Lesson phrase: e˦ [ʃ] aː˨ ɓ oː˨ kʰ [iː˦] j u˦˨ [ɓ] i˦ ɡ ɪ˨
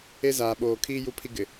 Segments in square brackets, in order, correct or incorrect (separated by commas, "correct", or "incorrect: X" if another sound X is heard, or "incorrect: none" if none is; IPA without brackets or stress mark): incorrect: z, correct, incorrect: pʰ